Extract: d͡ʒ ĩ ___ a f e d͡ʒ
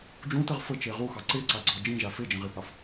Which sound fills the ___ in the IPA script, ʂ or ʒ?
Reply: ʒ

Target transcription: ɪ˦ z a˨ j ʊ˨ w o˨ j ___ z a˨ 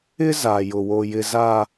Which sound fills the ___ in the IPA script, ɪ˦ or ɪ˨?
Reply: ɪ˨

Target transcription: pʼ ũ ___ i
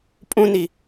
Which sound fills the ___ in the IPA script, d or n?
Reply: n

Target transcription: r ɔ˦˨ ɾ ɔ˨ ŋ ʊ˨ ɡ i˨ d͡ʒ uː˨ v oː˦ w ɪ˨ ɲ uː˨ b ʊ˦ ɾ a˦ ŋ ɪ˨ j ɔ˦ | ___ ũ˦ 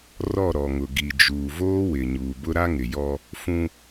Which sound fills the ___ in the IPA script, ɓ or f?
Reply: f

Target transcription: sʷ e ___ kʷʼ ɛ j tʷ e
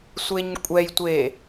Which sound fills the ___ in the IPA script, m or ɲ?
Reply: ɲ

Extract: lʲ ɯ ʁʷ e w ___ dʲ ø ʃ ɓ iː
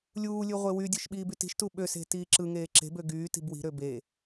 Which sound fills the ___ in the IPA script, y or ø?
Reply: y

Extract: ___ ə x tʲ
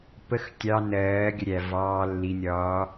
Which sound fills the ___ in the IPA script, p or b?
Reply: p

